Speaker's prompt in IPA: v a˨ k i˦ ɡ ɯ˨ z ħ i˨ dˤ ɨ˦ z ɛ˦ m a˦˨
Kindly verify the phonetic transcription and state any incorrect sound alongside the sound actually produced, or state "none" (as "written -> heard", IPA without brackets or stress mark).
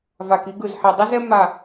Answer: ɨ˦ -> i˦